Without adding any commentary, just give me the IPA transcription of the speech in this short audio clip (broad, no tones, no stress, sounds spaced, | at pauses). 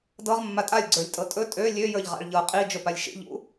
d ɤ ʁ mː a tʼ a lʲ ɡ͡ǀ ə˞ lʲ tʼ ɤ tʼ ɵ tʼ ø lʲ ø j ə˞ ʎ ʁ a̰ ɭ ʎ ɤ qʼ i d͡ʒ ɵ p a lʲ ʃ ḭ ʎ ṵ